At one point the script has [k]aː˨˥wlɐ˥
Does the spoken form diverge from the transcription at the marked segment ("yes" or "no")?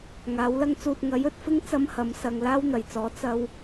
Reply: yes